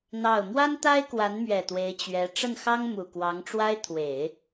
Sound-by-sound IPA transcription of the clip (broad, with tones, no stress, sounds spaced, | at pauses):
n̪ ɑ˥˩ ʊ̯ m w a˥ n t̪ a˥ ɪ̯ k w a˧˥ n m ɥ ɛ˨˩ t̪ w e˧˥ ɪ̯ t͡ɕ ɥ ɛ˧˥ ʈ͡ʂ ə˥˩ n x ɑ˥ ŋ m u˨˩ k w ɑ˧˥ ŋ ʈ͡ʂ w a˥ ɪ̯ t̪ʰ w e˨˩˦ ɪ̯